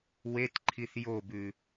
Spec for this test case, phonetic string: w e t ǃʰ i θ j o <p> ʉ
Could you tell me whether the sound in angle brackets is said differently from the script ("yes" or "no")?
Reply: yes